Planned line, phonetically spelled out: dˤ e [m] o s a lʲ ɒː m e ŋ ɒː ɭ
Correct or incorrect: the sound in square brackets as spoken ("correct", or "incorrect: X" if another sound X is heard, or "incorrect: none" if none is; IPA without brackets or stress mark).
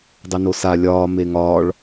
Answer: incorrect: n